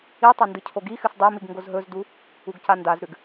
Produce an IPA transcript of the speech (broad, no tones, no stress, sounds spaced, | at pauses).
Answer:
i tˤ ɐ n d ɨ cʰ o ɡ i x ɨ s dˤ e m i ɡ ŋ ɡ o z ɦ ɵ z d u | u ɡ c a n d a z ɾ ʉ ɡ